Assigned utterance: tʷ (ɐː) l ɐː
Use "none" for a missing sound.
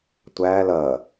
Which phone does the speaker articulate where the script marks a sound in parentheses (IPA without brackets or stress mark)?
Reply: æː